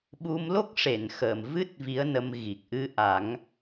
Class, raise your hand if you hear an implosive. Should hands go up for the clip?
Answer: yes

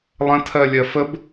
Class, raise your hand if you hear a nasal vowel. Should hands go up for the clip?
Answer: yes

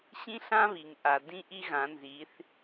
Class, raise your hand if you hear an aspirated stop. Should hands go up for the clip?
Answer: no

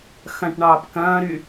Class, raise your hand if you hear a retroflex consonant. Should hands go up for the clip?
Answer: yes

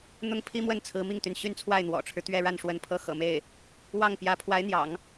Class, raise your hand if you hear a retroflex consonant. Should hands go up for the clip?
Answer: yes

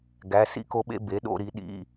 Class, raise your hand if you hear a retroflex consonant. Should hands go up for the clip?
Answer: no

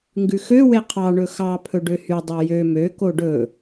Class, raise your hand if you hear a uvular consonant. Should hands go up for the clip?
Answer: yes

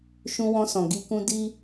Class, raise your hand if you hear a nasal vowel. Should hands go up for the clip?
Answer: yes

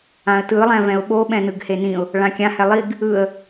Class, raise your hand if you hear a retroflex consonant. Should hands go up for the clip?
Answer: yes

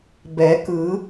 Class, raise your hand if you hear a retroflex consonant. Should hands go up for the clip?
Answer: no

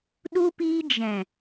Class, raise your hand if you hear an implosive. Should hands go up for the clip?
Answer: yes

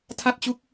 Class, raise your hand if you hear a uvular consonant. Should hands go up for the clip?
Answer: no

